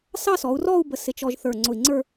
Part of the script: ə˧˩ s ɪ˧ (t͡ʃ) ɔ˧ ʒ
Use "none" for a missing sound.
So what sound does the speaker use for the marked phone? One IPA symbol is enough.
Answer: t͡ʃ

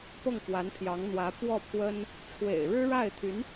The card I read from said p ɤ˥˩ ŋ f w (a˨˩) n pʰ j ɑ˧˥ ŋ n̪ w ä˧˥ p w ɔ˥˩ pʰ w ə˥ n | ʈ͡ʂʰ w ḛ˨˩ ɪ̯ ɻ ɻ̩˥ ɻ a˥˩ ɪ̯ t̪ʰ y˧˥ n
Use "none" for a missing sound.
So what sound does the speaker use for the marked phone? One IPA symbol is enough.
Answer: a˧˥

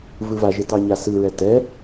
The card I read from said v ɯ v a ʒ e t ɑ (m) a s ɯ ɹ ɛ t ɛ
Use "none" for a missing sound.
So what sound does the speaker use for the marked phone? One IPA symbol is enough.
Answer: ɲ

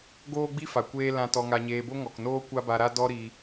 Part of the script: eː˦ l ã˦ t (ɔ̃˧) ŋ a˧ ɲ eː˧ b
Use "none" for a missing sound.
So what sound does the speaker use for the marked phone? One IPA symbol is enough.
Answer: ɔ˧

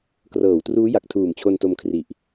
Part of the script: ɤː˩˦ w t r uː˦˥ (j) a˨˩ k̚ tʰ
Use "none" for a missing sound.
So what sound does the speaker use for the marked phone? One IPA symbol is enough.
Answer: j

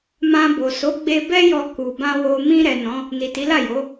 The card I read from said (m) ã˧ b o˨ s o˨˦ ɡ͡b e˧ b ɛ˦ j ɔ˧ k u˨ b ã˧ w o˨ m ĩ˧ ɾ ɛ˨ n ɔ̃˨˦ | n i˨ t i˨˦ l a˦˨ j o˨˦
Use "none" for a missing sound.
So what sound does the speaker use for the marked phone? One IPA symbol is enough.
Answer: m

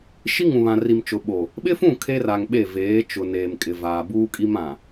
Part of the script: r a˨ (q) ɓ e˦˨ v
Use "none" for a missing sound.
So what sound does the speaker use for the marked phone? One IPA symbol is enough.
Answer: ŋ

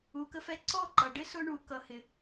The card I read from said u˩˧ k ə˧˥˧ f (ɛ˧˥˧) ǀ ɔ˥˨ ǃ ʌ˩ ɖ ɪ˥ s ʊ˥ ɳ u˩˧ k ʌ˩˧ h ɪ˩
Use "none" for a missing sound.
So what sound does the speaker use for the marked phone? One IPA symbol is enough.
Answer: ɛ˧˥˧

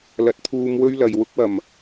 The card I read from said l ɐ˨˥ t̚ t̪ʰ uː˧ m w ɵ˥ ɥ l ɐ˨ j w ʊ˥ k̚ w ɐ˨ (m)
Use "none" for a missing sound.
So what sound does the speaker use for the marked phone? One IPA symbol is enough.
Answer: m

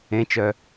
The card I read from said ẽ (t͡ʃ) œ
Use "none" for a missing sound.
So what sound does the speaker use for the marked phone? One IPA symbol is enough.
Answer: t͡ʃ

